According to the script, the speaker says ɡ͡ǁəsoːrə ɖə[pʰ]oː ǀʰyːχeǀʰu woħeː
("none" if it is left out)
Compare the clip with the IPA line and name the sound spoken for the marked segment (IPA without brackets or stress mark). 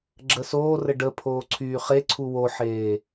pʰ